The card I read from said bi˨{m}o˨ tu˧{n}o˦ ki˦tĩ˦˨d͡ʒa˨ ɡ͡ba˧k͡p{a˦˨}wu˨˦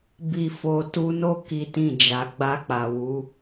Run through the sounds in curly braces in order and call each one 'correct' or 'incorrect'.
incorrect: f, correct, incorrect: a˨

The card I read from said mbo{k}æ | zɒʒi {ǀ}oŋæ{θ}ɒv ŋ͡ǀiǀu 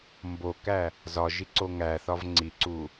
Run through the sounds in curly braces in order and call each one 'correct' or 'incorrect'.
correct, correct, correct

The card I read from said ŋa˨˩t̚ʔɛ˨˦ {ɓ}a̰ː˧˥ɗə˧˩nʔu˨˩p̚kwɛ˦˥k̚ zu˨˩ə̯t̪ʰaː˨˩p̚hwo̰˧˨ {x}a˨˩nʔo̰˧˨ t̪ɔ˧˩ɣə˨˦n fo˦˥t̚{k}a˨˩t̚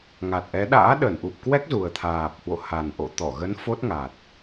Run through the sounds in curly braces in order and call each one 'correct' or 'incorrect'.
incorrect: ɗ, incorrect: h, incorrect: ŋ

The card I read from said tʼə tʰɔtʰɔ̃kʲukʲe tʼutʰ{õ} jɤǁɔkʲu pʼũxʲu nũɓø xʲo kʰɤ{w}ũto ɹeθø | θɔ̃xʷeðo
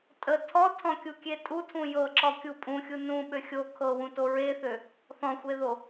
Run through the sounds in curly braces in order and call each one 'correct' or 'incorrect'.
incorrect: ũ, correct

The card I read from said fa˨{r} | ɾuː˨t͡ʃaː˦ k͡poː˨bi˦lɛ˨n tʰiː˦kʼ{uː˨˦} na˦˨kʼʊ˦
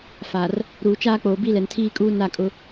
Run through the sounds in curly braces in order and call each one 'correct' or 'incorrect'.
correct, incorrect: uː˦

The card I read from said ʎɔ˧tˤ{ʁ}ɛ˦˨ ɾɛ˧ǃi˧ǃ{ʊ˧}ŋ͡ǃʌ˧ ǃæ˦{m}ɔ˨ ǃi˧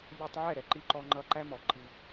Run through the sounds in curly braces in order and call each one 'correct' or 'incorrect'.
incorrect: ʕ, incorrect: ɔ˧, correct

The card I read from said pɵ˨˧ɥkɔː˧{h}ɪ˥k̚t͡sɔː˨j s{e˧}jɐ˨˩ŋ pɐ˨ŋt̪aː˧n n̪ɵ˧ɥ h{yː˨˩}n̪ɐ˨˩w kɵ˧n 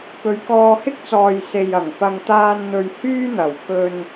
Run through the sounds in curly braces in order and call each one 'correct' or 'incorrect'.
correct, incorrect: e˨, incorrect: yː˥

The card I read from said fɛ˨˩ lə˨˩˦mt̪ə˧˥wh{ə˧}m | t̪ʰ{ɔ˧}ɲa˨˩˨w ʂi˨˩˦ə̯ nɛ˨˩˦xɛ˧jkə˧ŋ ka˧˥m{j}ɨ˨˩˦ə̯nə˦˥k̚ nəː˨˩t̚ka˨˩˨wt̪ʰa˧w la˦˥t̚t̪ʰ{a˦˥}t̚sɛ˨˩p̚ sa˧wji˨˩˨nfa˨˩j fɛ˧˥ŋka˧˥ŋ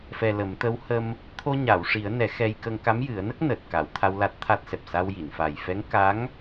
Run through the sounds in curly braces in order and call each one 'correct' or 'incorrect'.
correct, incorrect: o˧, correct, correct

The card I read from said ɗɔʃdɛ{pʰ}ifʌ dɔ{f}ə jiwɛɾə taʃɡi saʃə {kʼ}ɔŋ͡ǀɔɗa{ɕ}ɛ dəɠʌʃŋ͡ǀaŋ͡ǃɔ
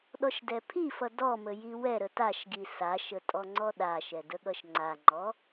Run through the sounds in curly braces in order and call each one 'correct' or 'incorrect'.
correct, incorrect: m, incorrect: tʼ, incorrect: ʃ

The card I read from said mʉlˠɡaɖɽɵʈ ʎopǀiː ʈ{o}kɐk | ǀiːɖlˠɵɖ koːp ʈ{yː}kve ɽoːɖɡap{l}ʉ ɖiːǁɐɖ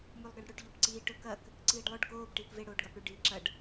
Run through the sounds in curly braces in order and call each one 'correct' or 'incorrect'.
incorrect: ɵ, incorrect: iː, incorrect: ɽ

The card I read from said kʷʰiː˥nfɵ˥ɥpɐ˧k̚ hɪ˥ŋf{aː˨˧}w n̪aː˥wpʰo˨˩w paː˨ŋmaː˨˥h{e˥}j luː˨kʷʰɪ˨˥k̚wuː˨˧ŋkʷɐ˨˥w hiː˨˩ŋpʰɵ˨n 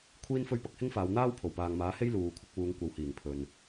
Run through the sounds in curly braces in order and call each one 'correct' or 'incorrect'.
correct, correct

